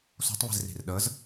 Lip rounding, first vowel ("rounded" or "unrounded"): rounded